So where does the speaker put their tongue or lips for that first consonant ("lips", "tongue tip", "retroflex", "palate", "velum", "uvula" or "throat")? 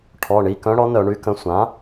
retroflex